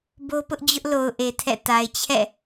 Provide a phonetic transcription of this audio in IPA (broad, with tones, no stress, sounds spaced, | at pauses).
b o˦ p ʊ˦ ʔ d͡ʑ ʊ˦ ʔ l o˨ ʊ̯ ʔ e˨ tʰ ɛ̰˦˨ t a˨ ɪ̯ t͡ɕʰ ɛ̰˦˨